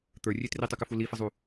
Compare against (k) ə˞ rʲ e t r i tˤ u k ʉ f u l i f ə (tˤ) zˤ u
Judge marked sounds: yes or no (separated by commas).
no, no